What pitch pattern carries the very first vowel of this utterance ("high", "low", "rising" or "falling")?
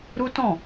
high